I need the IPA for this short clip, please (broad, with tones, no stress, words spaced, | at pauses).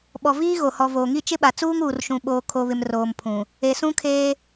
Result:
ɓɔ˨viː˦ɣo˨ hɔ˨voː˨ŋi˦˨ t͡ʃɪ˦ɓa˨t͡suː˦ŋ uː˨rʃũ˨ɓoː˨ kʰo˨βɪ˨m roː˨mpʰũ˨ | e˨sũ˦kʰeː˦